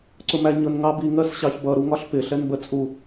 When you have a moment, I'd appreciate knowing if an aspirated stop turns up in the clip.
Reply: no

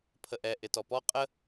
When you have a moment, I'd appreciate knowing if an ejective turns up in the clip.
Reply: yes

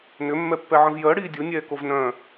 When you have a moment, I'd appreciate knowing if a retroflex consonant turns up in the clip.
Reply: yes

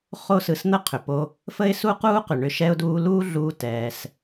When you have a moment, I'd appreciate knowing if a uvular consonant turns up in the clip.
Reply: yes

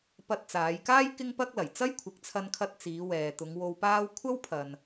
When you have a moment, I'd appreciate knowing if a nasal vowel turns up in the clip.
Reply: no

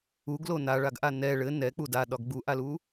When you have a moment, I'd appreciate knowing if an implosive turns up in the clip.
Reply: yes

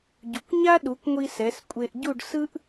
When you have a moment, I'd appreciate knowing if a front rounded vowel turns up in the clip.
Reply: no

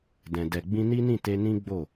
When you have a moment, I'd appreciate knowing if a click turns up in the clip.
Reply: no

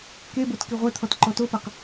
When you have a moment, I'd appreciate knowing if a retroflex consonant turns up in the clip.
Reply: no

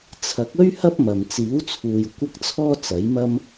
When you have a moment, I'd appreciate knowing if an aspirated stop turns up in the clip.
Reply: yes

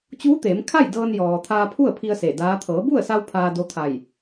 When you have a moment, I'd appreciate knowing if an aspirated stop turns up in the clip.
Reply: yes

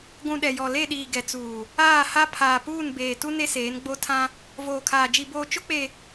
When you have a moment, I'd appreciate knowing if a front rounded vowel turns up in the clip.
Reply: no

